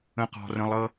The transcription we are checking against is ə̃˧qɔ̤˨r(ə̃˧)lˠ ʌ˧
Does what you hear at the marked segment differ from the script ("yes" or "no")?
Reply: no